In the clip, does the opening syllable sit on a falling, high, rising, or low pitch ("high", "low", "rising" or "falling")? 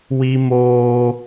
high